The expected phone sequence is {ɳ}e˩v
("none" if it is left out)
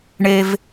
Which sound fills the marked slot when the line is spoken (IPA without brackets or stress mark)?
ɳ